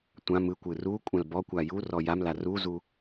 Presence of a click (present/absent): absent